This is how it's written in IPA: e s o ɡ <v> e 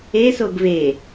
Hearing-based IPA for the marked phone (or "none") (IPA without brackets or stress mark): v